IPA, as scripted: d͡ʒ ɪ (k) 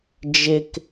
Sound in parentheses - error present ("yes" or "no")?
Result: no